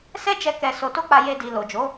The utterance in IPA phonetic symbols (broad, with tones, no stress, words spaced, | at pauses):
sɛ˦d͡ʒɛ˧ kɛ˧ so˧ to˦k͡pa˧ je˧di˨ lo˨d͡ʒo˨˦